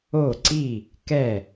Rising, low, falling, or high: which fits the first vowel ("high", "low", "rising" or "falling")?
falling